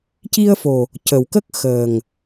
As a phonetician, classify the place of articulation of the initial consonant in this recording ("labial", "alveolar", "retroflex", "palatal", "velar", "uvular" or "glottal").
palatal